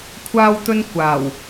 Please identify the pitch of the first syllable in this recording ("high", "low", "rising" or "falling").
high